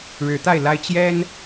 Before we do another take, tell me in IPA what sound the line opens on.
ɻ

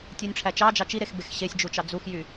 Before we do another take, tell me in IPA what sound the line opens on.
tʲ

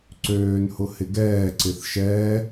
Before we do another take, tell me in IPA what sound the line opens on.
ǀ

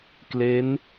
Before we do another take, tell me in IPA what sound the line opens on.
k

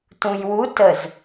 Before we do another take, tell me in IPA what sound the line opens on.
t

